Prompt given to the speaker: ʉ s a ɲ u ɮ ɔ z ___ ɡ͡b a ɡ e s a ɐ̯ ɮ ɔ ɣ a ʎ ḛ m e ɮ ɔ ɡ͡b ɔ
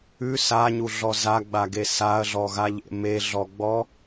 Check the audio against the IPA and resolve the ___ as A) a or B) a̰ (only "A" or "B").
A